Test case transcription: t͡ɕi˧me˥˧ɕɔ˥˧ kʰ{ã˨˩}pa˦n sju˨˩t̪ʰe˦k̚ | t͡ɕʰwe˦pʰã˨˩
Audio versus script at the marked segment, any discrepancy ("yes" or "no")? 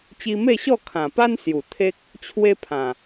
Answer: no